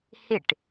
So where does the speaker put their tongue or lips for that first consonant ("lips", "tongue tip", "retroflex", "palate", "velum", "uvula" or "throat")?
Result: throat